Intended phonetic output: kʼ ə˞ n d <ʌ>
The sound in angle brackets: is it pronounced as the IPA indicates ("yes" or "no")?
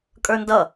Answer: yes